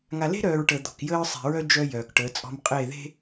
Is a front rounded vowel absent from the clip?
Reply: no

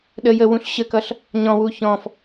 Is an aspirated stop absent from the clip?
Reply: yes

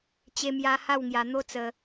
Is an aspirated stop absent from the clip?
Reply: yes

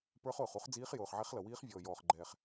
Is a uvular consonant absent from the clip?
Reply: no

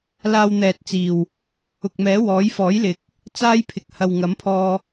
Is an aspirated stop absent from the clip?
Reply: no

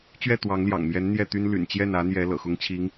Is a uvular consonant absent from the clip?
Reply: yes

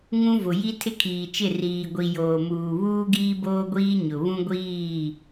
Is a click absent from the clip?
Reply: yes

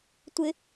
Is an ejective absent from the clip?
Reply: yes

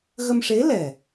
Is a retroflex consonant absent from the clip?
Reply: no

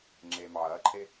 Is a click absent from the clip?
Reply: no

